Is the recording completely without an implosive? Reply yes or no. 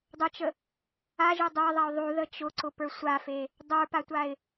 yes